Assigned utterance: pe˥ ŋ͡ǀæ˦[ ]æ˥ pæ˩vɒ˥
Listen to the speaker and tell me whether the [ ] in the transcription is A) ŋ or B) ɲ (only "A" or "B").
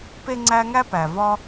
A